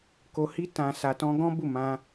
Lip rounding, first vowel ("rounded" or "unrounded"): rounded